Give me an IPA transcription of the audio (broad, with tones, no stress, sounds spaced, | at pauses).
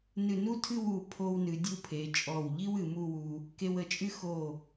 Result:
n ɨ˧˩ n u˥ tʰ ɨ˥˧ w u˧˩ pʰ o˧ w n ɨ˩˧ dʲ u˧ pʰ e˩˧ t͡ʃʼ ɔ˧˩ w ʎ i˥ w ɨ˩˧ m u˥˧ w u˧ | k e˧ w ə˧˩ t͡ʃʼ ɨ˥ x o˧˩